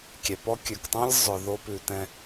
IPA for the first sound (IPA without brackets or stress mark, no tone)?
kʲ